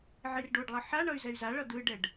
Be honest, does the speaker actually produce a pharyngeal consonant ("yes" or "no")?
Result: yes